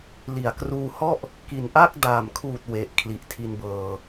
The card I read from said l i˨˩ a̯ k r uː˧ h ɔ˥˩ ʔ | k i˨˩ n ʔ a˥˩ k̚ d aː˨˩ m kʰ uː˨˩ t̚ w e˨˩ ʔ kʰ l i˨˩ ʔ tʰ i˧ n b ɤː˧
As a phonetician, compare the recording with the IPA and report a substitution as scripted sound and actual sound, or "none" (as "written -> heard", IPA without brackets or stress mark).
none